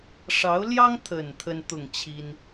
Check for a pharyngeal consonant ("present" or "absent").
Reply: absent